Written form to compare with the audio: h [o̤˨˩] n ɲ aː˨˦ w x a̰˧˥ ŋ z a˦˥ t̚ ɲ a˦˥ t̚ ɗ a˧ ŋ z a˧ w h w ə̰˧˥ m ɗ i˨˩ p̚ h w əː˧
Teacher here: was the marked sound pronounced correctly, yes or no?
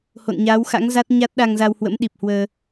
no